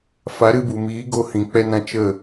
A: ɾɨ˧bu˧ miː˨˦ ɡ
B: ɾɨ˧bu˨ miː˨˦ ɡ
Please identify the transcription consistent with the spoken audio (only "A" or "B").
B